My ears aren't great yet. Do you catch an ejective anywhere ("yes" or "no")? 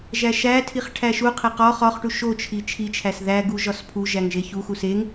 no